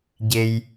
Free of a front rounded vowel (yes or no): yes